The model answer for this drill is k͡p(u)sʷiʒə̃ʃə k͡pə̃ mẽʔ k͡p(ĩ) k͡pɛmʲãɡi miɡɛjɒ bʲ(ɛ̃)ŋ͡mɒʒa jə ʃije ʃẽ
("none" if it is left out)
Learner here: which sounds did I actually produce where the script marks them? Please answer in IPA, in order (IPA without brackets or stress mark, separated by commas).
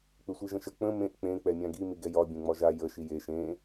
ʏ, ẽ, ɛ̃